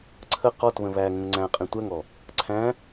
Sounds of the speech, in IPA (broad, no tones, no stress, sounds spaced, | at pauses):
ǀʰ ə q ɔ t β ə̃ β æ ŋ ə̃ ŋ ŋ͡ǀ æ̃ qʼ ĩ tʷ æ ŋ ɔ | ǀʰ æ̃